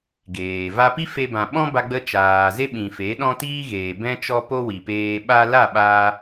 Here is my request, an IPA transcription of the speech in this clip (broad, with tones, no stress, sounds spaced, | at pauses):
ɡ eː˨ v a˧ p i˦ f e˧ b ã˨ ɓ ɔ̃˦ b a˧ ɡ͡b ə˧ t͡ʃ aː˨ z e˦ ɓ ĩ˨ f e˨˦ ɗ ɔ̃˦ t iː˦ ɣ eː˨ b ɛ̃˦ t͡ʃ ɔ˦ p o˦ w i˨ p eː˧ ɓ a˧ l a˦˨ ɓ aː˧